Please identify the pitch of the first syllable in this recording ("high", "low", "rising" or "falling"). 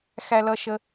high